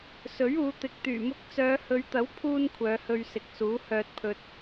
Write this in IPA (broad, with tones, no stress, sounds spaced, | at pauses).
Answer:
s ɵ˨˥ ɥ uː˨˧ t̪ ɪ˨ k̚ t̪ yː˨˩ m ʊ˧ k̚ t͡s œː˨˧ h ɵ˨˧ ɥ t̪ ɐ˨˥ w pʰ uː˧ n kʷʰ œː˨˧ h ɵ˧ ɥ s ɪ˨˥ k̚ s uː˨˥ h œː˨ t̚ pʰ ɵ˨ t̚